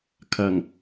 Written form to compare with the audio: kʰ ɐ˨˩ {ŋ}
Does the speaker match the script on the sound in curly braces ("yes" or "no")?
yes